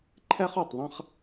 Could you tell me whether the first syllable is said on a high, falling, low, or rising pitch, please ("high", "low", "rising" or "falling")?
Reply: high